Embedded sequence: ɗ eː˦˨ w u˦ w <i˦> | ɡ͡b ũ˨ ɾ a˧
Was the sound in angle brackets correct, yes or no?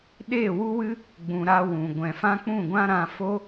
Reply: no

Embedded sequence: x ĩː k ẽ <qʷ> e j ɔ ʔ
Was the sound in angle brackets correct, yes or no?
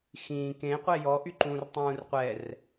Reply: yes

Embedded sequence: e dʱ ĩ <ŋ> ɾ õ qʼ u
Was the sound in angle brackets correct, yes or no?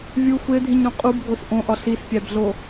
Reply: no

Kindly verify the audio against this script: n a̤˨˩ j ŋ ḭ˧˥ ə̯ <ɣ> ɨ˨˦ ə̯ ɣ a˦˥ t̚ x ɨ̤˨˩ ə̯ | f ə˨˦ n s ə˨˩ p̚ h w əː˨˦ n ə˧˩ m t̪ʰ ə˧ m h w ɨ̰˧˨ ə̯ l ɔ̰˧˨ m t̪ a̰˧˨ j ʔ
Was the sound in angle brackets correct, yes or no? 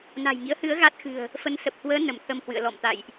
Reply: no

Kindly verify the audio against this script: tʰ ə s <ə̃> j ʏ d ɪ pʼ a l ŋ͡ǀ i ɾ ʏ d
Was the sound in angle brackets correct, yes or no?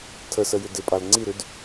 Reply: no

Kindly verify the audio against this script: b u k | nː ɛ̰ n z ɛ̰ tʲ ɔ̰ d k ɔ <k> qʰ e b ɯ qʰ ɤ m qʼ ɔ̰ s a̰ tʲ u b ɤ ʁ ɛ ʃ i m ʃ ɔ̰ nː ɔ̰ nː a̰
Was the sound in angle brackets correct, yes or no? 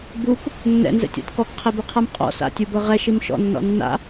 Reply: yes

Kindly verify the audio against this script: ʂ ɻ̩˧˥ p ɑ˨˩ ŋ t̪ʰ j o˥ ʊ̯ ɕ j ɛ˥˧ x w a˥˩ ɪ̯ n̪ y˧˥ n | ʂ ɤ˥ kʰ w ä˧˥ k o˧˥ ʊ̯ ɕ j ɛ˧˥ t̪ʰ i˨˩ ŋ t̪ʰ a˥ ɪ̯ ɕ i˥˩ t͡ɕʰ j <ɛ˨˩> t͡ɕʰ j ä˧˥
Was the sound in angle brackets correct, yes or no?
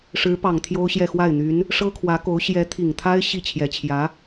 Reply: yes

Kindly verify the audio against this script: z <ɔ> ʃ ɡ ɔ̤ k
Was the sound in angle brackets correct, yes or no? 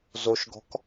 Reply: no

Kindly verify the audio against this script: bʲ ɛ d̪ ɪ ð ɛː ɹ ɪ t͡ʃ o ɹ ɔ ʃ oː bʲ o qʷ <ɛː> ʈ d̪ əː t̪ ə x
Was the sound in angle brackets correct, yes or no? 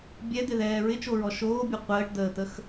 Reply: no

